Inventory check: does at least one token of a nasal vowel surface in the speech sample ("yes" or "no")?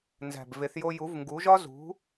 no